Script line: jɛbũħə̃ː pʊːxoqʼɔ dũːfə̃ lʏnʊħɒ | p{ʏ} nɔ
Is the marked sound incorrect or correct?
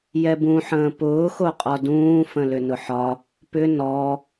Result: correct